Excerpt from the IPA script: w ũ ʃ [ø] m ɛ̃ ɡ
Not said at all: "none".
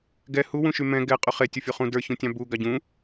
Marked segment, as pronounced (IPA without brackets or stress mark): y